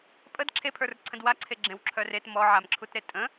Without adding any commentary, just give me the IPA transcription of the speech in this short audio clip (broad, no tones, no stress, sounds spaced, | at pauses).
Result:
pʼ ə d ǁʰ e pʰ ə˞ r ǀʰ ə̃ d w a ǀʰ e ɡ͡ǁ ẽ w ǁʰ œ r e t m ɔ ʕ a m ǁʰ u t ɾ e tʼ ə̃